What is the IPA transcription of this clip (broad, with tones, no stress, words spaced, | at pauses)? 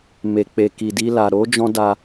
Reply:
me˨k͡pe˨ ki˨di˧ la˨ ɾo˨˦d͡ʒɔ̃˧ da˧